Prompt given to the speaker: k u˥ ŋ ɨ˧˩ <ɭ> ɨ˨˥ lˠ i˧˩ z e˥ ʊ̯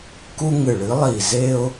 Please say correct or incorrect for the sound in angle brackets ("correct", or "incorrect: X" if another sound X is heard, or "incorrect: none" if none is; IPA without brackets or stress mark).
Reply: correct